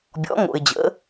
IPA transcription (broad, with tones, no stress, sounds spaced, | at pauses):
bʲ ɔ̰˨˦ ŋ o̰˨ ɪ̯ d͡ʑ ə̰˨˦